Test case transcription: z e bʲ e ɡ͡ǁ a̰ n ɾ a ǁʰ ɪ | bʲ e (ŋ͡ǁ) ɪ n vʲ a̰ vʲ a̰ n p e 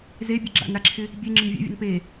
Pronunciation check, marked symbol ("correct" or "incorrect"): correct